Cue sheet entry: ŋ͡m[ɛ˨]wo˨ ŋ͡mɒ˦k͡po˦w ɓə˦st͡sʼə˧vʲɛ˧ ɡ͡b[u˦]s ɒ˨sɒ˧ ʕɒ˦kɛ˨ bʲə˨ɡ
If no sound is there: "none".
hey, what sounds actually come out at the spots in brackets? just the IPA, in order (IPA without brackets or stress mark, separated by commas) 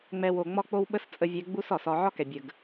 ɛ˧, u˦